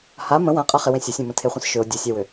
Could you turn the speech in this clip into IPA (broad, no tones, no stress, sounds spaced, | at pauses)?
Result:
h a m ə̃ w ã qʼ a χ ɪ w ẽ sʲ ə sʲ ẽ m ə̃ tʰ e χʷ ə̃ s ʃ ʏ o̯ dʲ ʊ sʲ a w ʏ